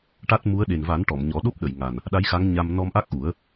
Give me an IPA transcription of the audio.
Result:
ʈa˦˥t̚mu˧˥ə̯ ɗe˨˩nva˨˩˦n ʈɔ˨˩˨mɲɔ˨˩˦ ɗo˦˥p̚ɗə˨˩˨j ŋa˨˩n | ɗa˧˥jxa˧˥ŋ ɲa˧m nɔ˧mʔa˦˥k̚ʔu˨˩˦ə̯

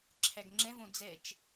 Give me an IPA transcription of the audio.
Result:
ǁʰæɡŋ͡ǁɛ̃võ d͡zɛt͡ʃ

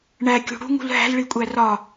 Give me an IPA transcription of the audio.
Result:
ɳækʲṳ ɽṳŋṳl ɦæ̤lɭikʷʼæ rɒ

